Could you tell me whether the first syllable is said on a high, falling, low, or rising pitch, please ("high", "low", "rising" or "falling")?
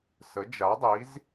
rising